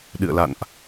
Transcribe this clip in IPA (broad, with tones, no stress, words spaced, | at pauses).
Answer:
ɗɨ̰˧˨ə̯la̰˧˨nʔ